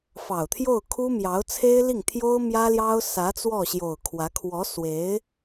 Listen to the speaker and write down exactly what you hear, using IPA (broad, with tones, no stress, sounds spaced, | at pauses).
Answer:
f ɑ˨˩ ʊ̯ t̪ʰ j o˥˩ ʊ̯ kʰ u˥ m j ɑ˧˥ ʊ̯ t͡sʰ e˥ ɪ̯ l i˥˩ ŋ t̪ʰ j o˥ ʊ̯ m j ä˥ l j ɑ˥ ʊ̯ s ä˧˥ t͡s w ɔ˥˩ ɕ j o˨˩ ʊ̯ kʰ w ä˧˥ kʰ w ɔ˧˥ s w e˧˥ ɪ̯